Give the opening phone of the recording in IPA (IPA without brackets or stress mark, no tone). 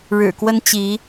ɻ